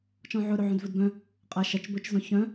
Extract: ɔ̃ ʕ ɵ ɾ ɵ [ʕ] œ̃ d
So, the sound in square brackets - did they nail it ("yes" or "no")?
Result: yes